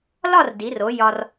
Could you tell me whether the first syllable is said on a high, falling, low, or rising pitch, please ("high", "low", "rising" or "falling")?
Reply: falling